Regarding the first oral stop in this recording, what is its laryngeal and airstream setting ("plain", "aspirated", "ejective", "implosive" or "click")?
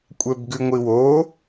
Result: ejective